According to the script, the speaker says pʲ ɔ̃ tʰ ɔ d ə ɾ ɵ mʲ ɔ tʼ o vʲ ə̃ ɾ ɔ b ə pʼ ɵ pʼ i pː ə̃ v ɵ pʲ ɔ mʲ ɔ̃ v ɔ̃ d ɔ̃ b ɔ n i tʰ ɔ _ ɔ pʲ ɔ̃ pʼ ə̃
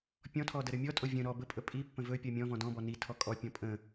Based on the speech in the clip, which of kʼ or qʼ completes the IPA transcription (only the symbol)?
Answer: kʼ